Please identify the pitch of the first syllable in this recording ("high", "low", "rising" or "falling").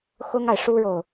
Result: high